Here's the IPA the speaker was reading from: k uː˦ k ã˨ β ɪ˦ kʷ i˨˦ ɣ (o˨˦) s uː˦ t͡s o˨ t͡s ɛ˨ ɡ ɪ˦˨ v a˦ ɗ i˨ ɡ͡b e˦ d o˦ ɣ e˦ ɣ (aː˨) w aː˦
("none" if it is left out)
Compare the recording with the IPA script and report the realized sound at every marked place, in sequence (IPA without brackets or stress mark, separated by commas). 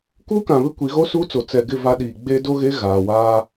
o˦, aː˨